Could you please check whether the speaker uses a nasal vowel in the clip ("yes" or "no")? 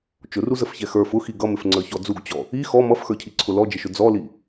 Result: no